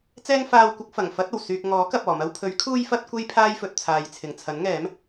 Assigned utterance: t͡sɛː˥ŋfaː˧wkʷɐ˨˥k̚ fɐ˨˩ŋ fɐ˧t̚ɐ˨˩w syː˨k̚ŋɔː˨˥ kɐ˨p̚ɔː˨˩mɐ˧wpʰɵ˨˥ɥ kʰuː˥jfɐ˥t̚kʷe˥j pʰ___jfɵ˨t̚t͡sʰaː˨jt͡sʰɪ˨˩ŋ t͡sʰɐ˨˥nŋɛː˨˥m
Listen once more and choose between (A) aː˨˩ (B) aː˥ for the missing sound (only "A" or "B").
B